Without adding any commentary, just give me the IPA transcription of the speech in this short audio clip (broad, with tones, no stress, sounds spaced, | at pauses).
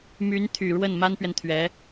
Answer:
m y˧˥ n t̪ʰ y˨˩ ɻ w ə˥˩ n m a˥ n p ɥ ɛ˨ n t̪ʰ ɥ ɛ˧˥